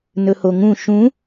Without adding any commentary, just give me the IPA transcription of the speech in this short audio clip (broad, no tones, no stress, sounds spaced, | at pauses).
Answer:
n ɵ h o ŋ ũ ʃ ũ